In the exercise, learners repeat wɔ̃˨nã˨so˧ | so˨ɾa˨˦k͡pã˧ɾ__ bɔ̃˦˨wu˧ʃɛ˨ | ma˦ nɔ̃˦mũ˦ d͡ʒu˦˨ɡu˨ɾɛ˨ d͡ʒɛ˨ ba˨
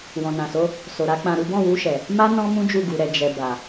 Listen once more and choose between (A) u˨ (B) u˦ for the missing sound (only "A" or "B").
B